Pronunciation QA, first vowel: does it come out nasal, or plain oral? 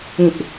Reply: nasal